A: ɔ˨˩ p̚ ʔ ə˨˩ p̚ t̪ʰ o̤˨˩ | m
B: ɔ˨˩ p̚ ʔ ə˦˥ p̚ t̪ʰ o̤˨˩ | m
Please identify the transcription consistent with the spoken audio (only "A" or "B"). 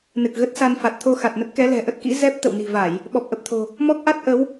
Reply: A